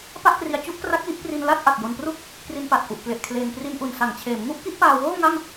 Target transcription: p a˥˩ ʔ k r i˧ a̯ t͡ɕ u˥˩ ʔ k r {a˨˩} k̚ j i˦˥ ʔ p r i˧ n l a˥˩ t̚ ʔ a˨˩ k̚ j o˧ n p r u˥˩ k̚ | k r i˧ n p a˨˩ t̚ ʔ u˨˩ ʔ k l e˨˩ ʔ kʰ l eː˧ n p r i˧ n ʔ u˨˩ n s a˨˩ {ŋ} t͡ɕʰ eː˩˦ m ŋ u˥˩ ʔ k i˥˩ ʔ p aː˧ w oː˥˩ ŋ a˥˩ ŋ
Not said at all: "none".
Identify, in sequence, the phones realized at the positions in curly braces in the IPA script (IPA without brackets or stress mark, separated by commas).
a˦˥, ŋ